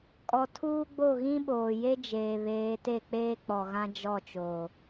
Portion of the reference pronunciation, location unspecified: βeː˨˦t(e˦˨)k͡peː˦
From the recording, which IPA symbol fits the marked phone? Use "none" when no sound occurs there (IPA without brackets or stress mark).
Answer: e˦˨